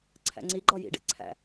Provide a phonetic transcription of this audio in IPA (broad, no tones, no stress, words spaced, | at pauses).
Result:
ǀʰæ̰ŋ͡ǀiɡ͡ǃɒ jḭɖḛ ǀʰæ̰